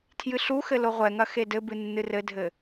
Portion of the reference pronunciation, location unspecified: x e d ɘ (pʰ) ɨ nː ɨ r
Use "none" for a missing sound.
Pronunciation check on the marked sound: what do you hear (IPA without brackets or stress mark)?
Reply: b